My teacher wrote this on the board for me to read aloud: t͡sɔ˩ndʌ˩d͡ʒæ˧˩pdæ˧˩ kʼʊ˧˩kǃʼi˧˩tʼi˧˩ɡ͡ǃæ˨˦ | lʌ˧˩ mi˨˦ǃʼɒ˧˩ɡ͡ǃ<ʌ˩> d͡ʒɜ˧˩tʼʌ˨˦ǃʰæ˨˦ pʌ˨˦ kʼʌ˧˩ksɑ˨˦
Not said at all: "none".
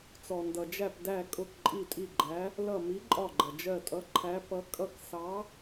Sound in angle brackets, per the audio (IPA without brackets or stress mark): ʌ˩